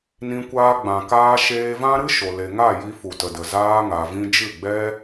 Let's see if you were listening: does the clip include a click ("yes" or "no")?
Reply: no